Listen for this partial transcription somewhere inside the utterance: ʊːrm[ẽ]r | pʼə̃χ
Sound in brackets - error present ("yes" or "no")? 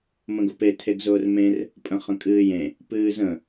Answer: no